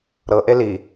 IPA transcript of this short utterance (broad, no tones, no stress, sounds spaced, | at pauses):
ɾ ɤ ʔ e l i